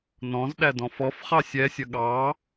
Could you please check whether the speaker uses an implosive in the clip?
yes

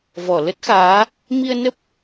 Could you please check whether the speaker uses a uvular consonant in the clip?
no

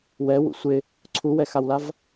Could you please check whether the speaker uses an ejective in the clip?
no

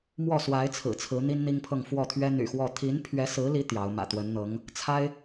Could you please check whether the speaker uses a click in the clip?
no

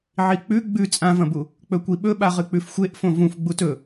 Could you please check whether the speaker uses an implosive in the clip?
yes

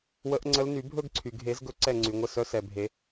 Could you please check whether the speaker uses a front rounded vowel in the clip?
yes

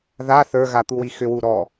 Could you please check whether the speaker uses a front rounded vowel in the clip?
yes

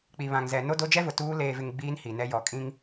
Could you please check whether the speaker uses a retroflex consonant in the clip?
no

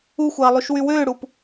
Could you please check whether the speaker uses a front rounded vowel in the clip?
yes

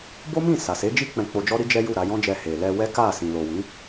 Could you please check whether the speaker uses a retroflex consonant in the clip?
no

